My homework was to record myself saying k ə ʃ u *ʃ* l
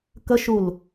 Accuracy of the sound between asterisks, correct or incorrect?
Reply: incorrect